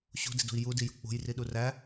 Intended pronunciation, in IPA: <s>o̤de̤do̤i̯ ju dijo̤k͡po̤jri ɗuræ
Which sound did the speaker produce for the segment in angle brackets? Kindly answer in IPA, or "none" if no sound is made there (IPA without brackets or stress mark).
ɕ